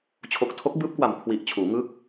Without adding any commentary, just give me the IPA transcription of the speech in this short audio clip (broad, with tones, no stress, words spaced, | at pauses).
t͡ɕʰo˨˩k̚tʰo˦˥k̚bɯː˦˥p̚kwa˨˩m kʰwi˨˩ʔt͡ɕʰuː˩˦ŋɯ˦˥k̚